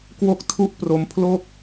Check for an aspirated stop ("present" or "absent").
present